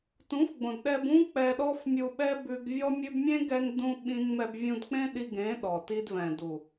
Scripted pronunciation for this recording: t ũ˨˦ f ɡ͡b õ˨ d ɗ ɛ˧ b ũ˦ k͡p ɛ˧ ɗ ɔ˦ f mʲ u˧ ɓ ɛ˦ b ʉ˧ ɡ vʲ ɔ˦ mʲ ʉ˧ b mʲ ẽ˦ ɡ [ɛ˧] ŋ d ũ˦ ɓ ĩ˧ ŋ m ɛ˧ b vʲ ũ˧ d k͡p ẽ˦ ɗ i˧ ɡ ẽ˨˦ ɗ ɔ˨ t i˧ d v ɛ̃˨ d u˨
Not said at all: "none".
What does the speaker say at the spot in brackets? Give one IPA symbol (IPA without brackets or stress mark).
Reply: ɛ˧